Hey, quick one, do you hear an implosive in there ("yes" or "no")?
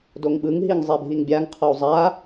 yes